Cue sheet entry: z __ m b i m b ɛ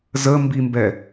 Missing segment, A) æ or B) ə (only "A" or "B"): B